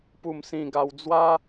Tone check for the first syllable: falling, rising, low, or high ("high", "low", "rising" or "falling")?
falling